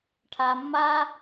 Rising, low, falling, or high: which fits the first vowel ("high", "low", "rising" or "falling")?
low